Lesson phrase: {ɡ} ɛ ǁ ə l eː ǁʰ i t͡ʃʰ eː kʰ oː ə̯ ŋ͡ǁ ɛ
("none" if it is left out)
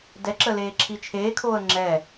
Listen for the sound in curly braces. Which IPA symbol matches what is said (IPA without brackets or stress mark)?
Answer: d